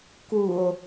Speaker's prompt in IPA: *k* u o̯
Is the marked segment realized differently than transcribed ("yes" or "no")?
no